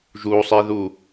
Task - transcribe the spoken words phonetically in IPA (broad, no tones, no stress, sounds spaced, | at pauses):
ʒ u sˤ i ð u